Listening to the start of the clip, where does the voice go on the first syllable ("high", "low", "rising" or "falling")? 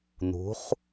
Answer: rising